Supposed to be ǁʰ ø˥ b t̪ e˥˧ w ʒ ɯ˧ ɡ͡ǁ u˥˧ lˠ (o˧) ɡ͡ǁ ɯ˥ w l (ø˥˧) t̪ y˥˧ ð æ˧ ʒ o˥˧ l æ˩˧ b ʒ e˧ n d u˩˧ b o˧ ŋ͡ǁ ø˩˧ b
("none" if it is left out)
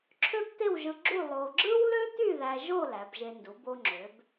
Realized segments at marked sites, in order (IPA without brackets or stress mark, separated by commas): o˧, ø˥